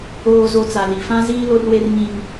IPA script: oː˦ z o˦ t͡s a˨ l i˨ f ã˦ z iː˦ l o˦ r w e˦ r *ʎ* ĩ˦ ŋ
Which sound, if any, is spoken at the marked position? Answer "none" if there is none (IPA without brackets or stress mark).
ɲ